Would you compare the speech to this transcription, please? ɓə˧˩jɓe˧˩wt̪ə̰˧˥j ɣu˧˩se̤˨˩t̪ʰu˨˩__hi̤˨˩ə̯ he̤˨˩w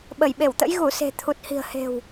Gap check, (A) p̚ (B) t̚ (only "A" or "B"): B